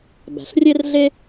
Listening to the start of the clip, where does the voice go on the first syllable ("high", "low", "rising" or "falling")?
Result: low